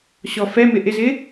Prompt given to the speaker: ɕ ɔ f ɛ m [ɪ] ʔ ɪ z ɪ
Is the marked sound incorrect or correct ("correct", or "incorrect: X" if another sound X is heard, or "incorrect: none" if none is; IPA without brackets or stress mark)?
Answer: correct